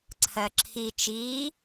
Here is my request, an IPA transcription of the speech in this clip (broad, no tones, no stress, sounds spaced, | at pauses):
ǀʰ ɜ ǁʰ i t͡ʃ iː